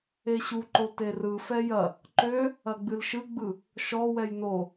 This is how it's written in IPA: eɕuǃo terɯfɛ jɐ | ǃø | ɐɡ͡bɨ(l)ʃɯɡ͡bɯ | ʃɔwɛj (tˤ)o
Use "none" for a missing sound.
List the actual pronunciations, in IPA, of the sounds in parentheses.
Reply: l, n

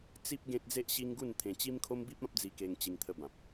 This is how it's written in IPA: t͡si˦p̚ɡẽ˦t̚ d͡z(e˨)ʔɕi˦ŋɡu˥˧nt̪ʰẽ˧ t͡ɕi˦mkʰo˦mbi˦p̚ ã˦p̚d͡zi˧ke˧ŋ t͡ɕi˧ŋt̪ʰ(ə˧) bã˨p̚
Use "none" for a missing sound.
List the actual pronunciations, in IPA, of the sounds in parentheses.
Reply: e˦, ə˧

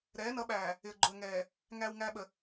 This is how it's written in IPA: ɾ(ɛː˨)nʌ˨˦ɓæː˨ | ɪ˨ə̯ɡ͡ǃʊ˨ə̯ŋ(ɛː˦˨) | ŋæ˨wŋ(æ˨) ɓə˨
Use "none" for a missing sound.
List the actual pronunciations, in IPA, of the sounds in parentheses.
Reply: ɛː˨˦, ɛː˨, æ˨

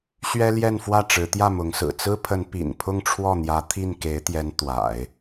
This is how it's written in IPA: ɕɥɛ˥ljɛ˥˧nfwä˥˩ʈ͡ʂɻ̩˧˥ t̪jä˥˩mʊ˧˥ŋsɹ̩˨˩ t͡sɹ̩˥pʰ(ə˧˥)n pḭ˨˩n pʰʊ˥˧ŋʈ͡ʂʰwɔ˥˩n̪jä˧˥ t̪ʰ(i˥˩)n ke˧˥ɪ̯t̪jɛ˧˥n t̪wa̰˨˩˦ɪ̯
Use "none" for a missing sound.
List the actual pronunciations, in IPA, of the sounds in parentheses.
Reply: ə˧˥, i˥˩

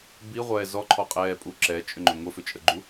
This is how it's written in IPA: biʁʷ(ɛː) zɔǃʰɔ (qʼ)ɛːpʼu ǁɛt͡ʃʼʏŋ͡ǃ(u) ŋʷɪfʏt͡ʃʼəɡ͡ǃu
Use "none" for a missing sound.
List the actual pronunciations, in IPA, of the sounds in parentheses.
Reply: ɛː, qʼ, ʏ

